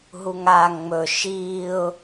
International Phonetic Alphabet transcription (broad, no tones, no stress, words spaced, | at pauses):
ɦuŋaːŋŋ͡mɵ ʃiːʊ̯